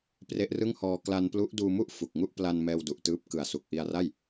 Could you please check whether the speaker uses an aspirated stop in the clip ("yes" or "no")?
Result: no